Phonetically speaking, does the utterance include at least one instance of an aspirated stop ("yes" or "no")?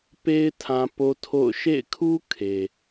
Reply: yes